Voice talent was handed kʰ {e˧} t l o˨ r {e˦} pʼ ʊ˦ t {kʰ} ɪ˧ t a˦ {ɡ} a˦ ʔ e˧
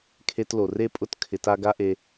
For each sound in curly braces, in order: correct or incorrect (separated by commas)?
correct, correct, correct, correct